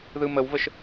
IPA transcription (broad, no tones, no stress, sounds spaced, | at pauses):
ð ɯ m ə w v ə ʃ